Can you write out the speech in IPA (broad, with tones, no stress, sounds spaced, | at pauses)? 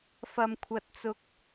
f ɐ˧ m kʷʰ ɐ˧ t̚ t͡s ʊ˧ k̚